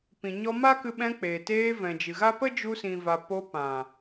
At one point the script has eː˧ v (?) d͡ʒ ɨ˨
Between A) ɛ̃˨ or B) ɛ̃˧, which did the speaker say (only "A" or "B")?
A